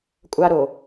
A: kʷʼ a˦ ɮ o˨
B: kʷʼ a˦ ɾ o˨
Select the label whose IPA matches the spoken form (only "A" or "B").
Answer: B